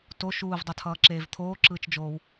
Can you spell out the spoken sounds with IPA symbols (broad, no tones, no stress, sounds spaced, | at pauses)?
t o ʃ uː v dˤ ʌ tʰ ʌː ǁ eː v t̪ʰ oː ǁ ɯː t͡ʃ d͡ʒ oː w